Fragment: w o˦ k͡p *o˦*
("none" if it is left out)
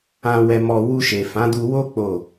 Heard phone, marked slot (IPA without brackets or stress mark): o˦˨